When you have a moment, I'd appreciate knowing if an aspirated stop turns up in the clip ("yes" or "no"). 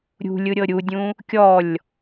no